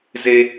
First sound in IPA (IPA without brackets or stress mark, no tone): z